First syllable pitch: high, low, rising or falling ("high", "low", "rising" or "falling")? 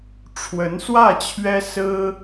rising